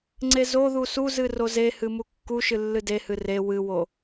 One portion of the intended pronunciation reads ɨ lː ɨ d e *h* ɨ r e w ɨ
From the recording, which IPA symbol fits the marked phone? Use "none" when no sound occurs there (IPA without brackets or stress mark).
h